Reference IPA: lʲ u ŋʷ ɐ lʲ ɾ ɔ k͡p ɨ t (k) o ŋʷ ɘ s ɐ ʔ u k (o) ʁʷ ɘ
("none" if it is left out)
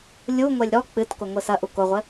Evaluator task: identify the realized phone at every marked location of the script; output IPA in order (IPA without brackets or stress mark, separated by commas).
k, o